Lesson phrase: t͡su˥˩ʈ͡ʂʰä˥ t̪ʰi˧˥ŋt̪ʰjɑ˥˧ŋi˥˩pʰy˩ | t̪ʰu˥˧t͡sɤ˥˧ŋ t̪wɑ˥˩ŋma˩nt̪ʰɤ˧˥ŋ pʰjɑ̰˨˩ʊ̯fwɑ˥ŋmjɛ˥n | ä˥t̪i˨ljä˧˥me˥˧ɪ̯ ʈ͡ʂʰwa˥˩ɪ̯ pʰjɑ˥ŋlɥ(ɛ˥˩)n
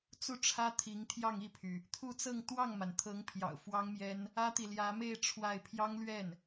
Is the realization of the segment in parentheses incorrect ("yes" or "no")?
no